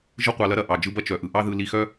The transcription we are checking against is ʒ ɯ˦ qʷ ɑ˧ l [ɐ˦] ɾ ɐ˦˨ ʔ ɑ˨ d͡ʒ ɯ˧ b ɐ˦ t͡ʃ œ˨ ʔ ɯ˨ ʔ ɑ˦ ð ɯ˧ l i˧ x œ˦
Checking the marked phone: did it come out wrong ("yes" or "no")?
no